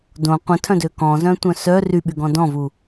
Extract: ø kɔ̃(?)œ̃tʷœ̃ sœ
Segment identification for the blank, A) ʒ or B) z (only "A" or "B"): B